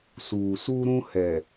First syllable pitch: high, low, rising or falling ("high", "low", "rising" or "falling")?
low